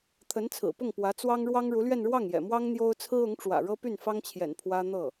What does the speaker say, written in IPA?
t̪ʰə˧˥nt͡sʰɹ̩˨˩pʊ˥˩ŋ pwä˧˥t͡swɑ˥ŋ ɻwɑ˥ŋɻu˧˥lɥɛ˥˧n ɻwɑ˥˩ŋjɛ̰˨˩mwɑ˥ŋ n̪jo˥ʊ̯ t͡sʰɹ̩˥ʊ˧˥ŋʈ͡ʂwä̰˨˩ ɻɤ˥py˥˩nfɑ˥ŋt͡ɕʰjɛ̰˨˩n pʰwä˥n̪ɤ˥˩

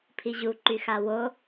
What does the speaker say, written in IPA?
pʰiʑuǃyxa wo

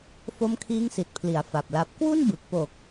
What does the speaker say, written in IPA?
fo˦˥mkʰiː˦˥ŋsi˨˩t̚pʰli˩˦a̯ fa˨˩p̚la˦˥p̚ kwu˥˩nbɯ˨˩k̚ po˨˩k̚

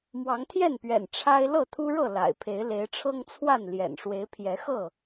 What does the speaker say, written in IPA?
mwɑ˨˦ŋt̪ʰjɛ˥˨npɥɛ̰˨˩n ʈ͡ʂʰa˦ɪ̯ lɤ˥˨t̪ʰu˦ɻɤ˥˨ la̰˨˩ɪ̯pʰe˨˦ɪ̯ le˨˦ɪ̯ʈ͡ʂʰɤ˦ŋt͡sʰwa˥˨n ljɛ̰˨˩nʂwe˨˦ɪ̯pʰjɛ˨˦xɤ˥˨

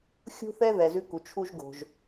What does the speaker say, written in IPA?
xʲṳ˥θɛ˥ðɛ˩ zʉ˥ku˩ t͡ʃʰu˥ʒɡo̤˩ʒ

